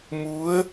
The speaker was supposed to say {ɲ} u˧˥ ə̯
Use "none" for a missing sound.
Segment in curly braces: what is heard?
m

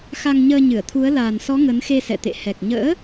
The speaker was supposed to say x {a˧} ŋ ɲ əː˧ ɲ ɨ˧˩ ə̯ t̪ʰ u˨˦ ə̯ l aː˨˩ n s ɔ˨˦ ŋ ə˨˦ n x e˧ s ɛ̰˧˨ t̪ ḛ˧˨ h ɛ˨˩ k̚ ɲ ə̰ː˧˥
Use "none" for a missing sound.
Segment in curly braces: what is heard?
a˧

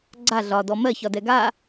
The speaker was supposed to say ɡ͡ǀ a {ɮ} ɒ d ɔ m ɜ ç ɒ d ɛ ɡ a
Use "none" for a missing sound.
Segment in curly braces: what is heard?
ɮ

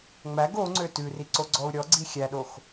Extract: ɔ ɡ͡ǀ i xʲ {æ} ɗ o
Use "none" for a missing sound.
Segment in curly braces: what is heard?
æ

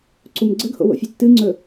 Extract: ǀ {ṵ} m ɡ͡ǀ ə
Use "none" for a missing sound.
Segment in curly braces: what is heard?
u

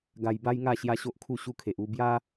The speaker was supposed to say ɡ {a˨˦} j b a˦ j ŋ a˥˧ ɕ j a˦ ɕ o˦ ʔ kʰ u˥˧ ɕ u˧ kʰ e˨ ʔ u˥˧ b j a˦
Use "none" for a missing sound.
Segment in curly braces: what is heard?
a˧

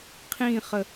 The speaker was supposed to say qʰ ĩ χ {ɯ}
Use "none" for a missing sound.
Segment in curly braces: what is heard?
ə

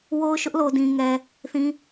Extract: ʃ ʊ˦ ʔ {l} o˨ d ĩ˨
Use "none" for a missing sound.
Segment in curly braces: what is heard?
l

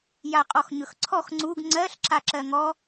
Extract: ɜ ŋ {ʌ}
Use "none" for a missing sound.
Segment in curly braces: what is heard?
ɔ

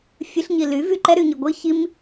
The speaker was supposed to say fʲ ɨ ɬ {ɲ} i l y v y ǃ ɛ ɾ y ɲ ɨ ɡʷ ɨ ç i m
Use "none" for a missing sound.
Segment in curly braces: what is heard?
ɲ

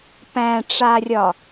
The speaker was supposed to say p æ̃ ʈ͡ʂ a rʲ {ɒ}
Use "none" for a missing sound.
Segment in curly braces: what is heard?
ɒ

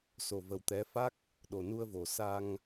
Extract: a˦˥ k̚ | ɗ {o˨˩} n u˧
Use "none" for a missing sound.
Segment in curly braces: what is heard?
o˨˩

